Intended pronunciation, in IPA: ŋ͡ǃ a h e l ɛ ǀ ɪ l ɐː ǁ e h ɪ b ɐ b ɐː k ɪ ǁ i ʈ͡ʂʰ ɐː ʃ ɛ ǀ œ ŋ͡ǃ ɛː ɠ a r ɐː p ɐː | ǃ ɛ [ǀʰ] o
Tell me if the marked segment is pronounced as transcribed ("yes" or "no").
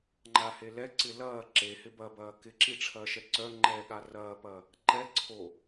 yes